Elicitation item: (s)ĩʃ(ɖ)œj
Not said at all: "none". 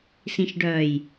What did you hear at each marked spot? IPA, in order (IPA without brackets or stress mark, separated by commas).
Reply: s, ɖ